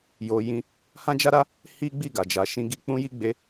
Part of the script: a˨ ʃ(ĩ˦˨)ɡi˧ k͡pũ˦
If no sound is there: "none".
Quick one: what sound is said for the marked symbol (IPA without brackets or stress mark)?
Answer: ĩ˧